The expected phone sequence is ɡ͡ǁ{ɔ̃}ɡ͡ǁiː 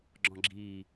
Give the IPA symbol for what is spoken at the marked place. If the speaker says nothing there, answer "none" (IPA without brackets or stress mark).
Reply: ɔ̃